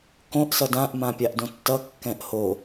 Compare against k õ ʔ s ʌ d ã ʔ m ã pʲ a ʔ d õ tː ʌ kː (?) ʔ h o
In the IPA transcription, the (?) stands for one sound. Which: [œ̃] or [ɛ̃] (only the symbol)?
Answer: ɛ̃